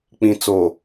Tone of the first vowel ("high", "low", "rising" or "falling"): low